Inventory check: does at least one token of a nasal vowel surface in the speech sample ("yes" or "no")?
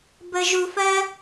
no